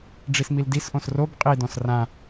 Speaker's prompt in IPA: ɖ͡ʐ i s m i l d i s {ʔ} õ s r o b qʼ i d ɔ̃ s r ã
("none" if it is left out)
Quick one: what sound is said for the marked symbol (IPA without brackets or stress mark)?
ʔ